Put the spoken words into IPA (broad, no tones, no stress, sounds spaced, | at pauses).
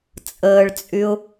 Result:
t͡sʼ əː ɭ t͡sʼ y ʊ̯